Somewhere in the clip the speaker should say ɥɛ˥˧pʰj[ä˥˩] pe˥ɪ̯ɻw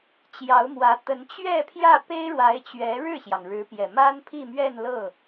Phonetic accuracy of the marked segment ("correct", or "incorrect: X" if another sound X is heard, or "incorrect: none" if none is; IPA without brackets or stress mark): correct